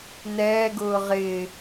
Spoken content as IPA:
n ɛː ɡ ʊː ʁ ɪː

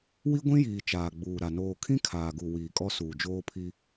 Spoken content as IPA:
w i˦ ɡʷ ĩ˦ j iː˨ t͡ʃ aː˨ ɡ͡b uː˨ ɾ a˨ n oː˨ kʰ ĩ˦ kʰ aː˨ ɡ u˨ w iː˨ kʼ ɔ˦ s uː˨ d͡ʒ oː˦ pʰ i˦

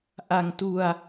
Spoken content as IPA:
ʔ a˧ ŋ t u˧ a̯

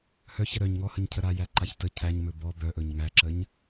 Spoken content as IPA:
h œ ç ə ɾ œ ɲ ŋ ɔ h ə ɲ cʰ ə ɾ a j æ ǃ a ç t ə cʰ æ ɲ m ɵ b ɔ b œ ʔ ɵ ɲ ŋ æ ǁ ə ɲ

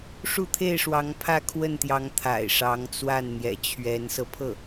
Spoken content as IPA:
ʂ u˥˧ t̪ʰ e˥˩ ɪ̯ ʂ w ɑ˧˥ ŋ pʰ ä˥˧ kʰ w ə˥˩ n t̪ j ɑ˧˥ ŋ t̪ʰ a̰˨˩ ɪ̯ ʂ ɑ˧˥ ŋ t͡s w a˥˩ n n̪ j ɛ̰˨˩ t͡ɕʰ ɥ ɛ˧˥ n s ɤ˧ pʰ ɤ˥˩

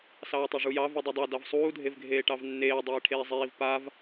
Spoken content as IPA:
s ɑː tˤ a ʐ u j ɑ v u dˤ i dˤ ɑ d ɑ v sˤ uː dʱ e v ɡʱ eː ʈ ɑ v nː eː dˤ iː ʈʰ eː zˤ iː v p a v

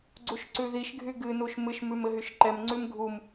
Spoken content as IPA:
ɡ͡ǀ u ʃ ǀ ʉ ð i ʃ ɡʱ y ɡ ɨ n u ʃ m ɨ ʃ m ʉ m ɘ ɦ y ʃ ǃ ɛ m ŋ͡ǀ ʉ m ɡʱ u m

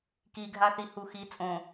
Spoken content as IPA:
k i ɡʱ a θ i h u x i t͡sʼ õ

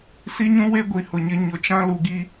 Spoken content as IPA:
s i˦ ɲ ũ˦ w e˦ ɡʷ i˨ h ʊ˨ ɲ ɪ˦ ɲ ʊ˨ t͡ʃ ã˦ l u˨ ɡ i˦

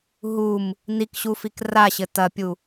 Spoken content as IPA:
ɦ u m | n i k ɕ u f i k r a ɕ ɘ t ɐ pʲ u

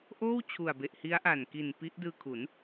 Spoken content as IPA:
ʔ oː˥˩ w t͡ɕʰ u˨˩ a̯ b e˨˩ ʔ h i˦˥ a̯ ʔ a˨˩ n k i˨˩ n p i˦˥ ʔ d ɯː˧ kʰ u˩˦ n

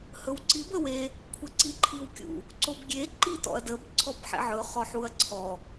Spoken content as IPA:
h ɵ w ǀ i b ə w e | kʷʰ ə ǀ i ǃʰ i w kʲ ṵ | ǀ o b ɡʲ e ǃ i t ɔ̰ ɐ̯ d ə b ǀʰ ɔ b ħ ḛ ʕ ɵ χ ɔ ħ u ɐ̯ ǀʰ ɔ

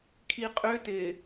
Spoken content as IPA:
kʰ i qʼ ʏ t ɪː

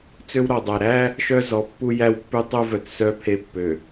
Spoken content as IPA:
t͡s ø˦ w ɾ ɔ˨ dˤ æ˨ ɾ æ˦ | ʃ œ˦ z ɔ˨ pː u˦ j æ˦ w pː ʉ˦ tˤ u˦ v œ˨ t s œ˦ pʰ e˦ pː ø˨

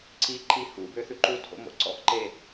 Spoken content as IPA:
ǀ i ǃ i h ṵ b ø θ ʉ ǃ u tʰ o̰ m o̰ ǀ ɔ̰ ʔ ǃ e

